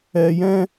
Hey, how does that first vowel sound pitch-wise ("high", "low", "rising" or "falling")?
low